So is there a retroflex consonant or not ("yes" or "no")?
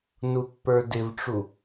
yes